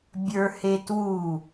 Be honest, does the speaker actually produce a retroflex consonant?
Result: no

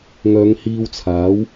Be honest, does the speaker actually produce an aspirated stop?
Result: yes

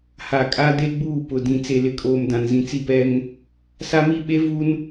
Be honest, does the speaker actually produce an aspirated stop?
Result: no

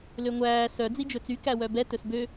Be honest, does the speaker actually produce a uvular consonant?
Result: no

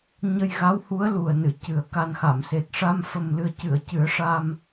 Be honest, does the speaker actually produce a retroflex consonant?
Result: yes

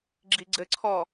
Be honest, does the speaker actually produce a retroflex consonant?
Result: no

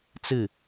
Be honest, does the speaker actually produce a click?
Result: no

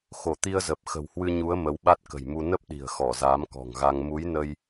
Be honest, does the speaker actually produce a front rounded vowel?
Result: no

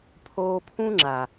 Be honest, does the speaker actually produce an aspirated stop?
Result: yes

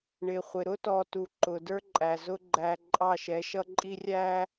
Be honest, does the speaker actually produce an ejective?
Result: yes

